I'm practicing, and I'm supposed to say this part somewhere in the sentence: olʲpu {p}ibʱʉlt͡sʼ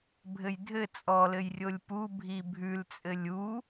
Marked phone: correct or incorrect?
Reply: incorrect